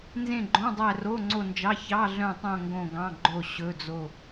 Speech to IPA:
n z ẽ˦˨ ɡ͡ǃ õ˧˥˧ dˤ æ˦˨ r o˧˥˧ ŋ͡ǀ o˦˨ n d͡ʒ ɑ˧˥˧ ç ɑ˧˥˧ ɮ œ̃˦˨ tˤ õ˦˨ ŋ ɡ õ˦˨ ɡ ɑ̃˧˥˧ ɡ͡ǃ o˦˨ ɕ ɵ˧˥˧ d͡z o˦˨

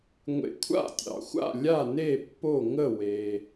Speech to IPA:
ŋʷ ḛ˨ kʷʰ a̰˥˨ tʲ ɑ̰˨ xʷ a̰˥˨ lʲ a˥˨ n e˥˨ pː o˥˨ ŋ ə˥˨ w e˨

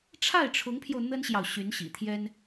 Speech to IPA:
ʈ͡ʂʰ a˥˩ ɪ̯ ʈ͡ʂʰ ʊ˧˥ ŋ pʰ j o˧ ʊ̯ n̪ ə˥ n ɕ j ɑ˨ ʊ̯ ɕ y˧˥ n ɕ ḭ˨˩ t̪ʰ j ɛ˥ n

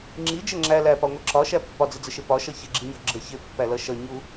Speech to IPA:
ŋ͡ǁ i d͡ʒ ə ŋ͡ǁ æ l æ p ɒ ŋʷ ʌ ǁ ɒ ʃ æ pː ɒ d͡z ɪ d͡z ə ʃ ɪ p ɒ ʃ ʌ ç ɪ ɡ͡ǁ i ɲ ɒ ɡ͡ǁ ə ç ɪ pː æ l ʌ ʃ ʌ ɲ u

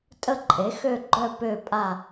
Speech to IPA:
tʼ ə˦˨ ǃʼ e˩˥ x ø˦˨ ɡ͡ǃ œ˦˨ p ø˦˨ pʼ a˦˨

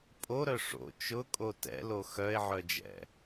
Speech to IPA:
pʼ o ɾ œ ʂ o̰ t͡ʃ ʊ kʼ o t ɛ̰ l o x œ e̯ ʕ œ d͡ʒ ɛ̰

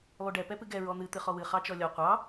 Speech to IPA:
lˠ u ɖ ɛ p ɛ p ɨ ɡ ɛ ɹ ɔ n̪ ɨ t̪ ɨ χ ɔ w ɨ χ ɑ t͡ʃ ɔ lʲ ɔ qʷ ɑ

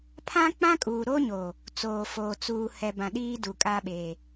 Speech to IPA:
pʰ ã˦ k͡p ã˦ kʼ uː˨ ɾ o˦ ɲ o˨ | t͡s oː˨ f oː˨ t͡s uː˨ h ɛ˨ b ã˨ ɗ iː˦ d u˨ kʼ aː˦ ɓ eː˨

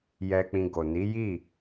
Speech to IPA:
j ɛ˧ k͡p ĩ˧ ɡ o˨ n i˨˦ j i˦˨

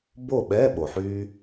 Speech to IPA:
b o˥˨ ɓ ɛ˧˥˧ ɓ o˩ ħ yː˧

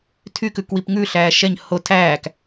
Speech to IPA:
tʰ y k ʉ k w i p ŋ ʉ ɬ æː ʃ ɛ ɲ h o tʰ æː k

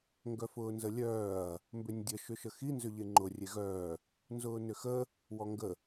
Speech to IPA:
ŋ ɡ œ f ʊː n z ə lʲ œː ɐ̯ | m b ʏ nʲ dʲ ə ʃ ʏ ʃ ə x i n z ʏ ʎ e ŋ͡ǃ ʊ rʲ e ɣ œː | n z ʊː n ʏ x ə | w ɔ ŋ ɡ ə

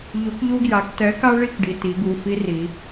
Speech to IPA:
ʎ u˨˥ k ʎ u˦ ɡ j a˩˧ k t ɛ˨˥ k a˦ ɭ i˥˨ k ɖ i˩˧˩ t i˩˧ ɡ u˩˧˩ f i˦ r i˩˧

